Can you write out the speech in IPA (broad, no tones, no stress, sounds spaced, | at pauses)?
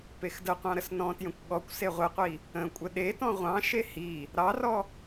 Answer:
p e x d ə qʷ ɑ̃ ɾ ə s n ɔ̃ t j ə̃ kʷ ɠ ɔ kʷ s e ʁʷ e qʷ i | ə̃ kʷʼ ə ɗ e t ɔ̃ ʁʷ ɑ̃ ʃ e h i | ɾ ɑ r ɔ